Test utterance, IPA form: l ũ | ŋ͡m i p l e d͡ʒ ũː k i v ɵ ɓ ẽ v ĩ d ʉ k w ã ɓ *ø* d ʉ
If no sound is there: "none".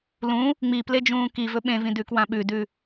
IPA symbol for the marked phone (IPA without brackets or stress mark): ʉ